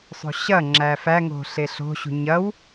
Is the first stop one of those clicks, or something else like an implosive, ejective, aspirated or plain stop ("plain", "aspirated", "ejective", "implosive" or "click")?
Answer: click